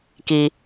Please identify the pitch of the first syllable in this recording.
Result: low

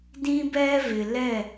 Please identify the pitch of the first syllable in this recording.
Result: high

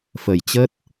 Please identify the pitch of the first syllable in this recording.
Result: low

